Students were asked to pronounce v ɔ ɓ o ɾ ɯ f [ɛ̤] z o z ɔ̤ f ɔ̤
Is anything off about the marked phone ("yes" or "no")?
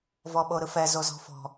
yes